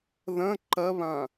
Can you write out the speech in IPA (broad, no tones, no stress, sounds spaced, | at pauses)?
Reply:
ð ɐ̃ ǃ ɐ β ã